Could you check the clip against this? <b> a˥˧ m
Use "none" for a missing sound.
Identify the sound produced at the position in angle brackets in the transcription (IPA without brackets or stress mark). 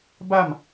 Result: b